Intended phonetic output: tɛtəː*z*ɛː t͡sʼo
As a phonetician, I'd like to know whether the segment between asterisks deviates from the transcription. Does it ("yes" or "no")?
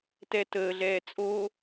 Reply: yes